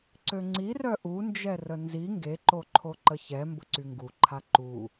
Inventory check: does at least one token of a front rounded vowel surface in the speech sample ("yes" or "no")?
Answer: yes